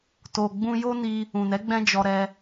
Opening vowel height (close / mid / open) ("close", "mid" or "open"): mid